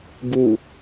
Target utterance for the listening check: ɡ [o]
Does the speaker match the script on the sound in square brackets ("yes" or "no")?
no